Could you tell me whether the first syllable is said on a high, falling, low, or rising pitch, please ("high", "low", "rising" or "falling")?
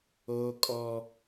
high